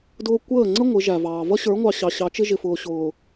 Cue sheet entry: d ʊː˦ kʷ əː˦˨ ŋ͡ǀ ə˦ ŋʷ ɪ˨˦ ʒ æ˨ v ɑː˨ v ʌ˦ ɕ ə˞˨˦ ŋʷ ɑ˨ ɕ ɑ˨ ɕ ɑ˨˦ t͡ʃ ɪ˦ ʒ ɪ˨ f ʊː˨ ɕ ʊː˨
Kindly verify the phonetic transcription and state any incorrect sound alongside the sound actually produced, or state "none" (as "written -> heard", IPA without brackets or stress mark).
none